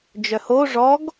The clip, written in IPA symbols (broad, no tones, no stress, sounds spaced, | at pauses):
d͡ʒ œ h o ʐ ɔ ɡ